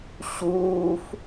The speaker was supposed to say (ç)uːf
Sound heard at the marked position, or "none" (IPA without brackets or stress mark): ɕ